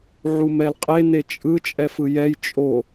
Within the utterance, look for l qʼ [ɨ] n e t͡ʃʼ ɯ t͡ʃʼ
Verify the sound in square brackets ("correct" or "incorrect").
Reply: incorrect